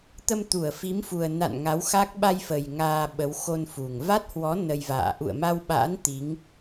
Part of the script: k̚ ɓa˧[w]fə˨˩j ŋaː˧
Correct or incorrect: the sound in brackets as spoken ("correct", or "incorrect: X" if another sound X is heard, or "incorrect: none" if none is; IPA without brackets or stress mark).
incorrect: j